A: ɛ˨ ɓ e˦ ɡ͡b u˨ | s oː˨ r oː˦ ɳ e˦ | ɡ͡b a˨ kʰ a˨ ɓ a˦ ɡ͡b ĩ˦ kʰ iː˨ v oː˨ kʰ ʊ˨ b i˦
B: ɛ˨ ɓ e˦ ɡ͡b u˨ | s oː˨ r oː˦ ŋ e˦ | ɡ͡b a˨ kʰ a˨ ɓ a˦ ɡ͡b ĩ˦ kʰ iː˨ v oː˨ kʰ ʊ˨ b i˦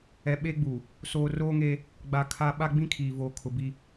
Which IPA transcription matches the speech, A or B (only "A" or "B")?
B